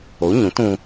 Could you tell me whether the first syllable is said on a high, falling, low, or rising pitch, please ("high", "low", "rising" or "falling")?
rising